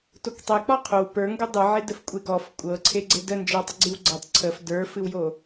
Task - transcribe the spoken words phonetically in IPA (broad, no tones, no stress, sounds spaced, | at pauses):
t o k tˤ ɛ k͡p ɔ qʰ o w p ə˞ ŋ ɡ o dˤ ɯ ʕ e d ə f kʷʼ e ɡ ɔ f kʷʼ ɤ ǀʰ e ɡ͡ǀ e d ə n d͡ʒ ə˞ tˤ ə ɡ͡ǀ ɨ w ɡ͡ǀ ɤ tˤ ǀʰ ə f d ə˞ f ɨ w j o